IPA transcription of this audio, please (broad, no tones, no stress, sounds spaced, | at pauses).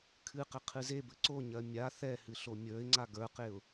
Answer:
kʰ ɨ q ɛ qʰ ɨ z e b ɘ ǀ o ɲ ɜ mʲ a θ ɛ h ɨ ɬ o mʲ ə˞ ɪ̯ ŋ͡ǀ a ɡ ə˞ q e ʊ̯